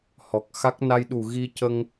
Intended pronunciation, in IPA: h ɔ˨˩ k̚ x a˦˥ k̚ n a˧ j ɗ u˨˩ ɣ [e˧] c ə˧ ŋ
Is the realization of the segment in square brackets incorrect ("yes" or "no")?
yes